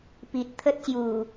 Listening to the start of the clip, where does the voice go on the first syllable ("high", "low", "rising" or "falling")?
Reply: low